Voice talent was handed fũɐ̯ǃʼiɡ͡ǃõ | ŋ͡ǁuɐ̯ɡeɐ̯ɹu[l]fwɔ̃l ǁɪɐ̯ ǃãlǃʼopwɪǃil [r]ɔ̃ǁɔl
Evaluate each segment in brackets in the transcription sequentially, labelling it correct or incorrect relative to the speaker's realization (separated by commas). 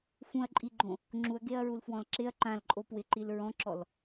correct, incorrect